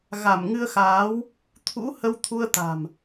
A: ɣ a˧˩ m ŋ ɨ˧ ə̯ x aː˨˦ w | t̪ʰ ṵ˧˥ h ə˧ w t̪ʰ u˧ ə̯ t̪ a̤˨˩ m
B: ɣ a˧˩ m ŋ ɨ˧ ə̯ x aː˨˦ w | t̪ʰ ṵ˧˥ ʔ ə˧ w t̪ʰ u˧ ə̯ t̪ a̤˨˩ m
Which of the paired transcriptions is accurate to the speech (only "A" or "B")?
A